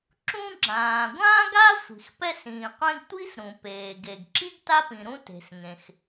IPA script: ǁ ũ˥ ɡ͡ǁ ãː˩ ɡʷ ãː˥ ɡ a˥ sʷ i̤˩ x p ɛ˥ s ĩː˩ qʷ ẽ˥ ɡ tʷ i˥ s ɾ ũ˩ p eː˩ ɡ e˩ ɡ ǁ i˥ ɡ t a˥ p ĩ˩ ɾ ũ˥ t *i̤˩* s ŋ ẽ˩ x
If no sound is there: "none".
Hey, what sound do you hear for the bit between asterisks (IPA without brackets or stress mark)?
e̤˩